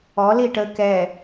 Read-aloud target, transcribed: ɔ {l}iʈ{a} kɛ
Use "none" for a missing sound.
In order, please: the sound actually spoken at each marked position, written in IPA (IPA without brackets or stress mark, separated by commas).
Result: l, ə